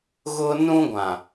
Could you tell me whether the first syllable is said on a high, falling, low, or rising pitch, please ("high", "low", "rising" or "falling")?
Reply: high